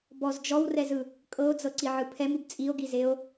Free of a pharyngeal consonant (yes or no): no